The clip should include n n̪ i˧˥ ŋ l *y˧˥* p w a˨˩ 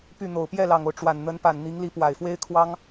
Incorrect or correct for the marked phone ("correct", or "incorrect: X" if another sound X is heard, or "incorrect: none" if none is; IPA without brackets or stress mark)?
incorrect: i˧˥